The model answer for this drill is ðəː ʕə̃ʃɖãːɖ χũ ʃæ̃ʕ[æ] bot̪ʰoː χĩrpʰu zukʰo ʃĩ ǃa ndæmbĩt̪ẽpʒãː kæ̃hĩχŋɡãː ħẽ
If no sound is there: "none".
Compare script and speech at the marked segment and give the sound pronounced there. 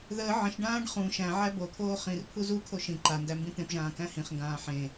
æ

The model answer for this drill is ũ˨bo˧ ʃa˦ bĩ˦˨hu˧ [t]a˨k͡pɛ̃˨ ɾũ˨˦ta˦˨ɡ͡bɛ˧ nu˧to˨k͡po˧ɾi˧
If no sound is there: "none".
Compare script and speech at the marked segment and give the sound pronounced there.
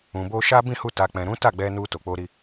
t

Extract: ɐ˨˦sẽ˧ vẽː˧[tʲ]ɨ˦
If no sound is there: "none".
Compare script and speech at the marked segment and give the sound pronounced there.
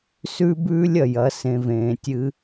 tʲ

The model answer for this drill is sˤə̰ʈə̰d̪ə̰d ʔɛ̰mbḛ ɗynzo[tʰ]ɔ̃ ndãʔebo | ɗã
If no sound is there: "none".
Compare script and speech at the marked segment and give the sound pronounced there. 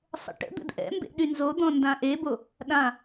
d̪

